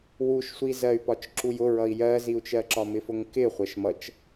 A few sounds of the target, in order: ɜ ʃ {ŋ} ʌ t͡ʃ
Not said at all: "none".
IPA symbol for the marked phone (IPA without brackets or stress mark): m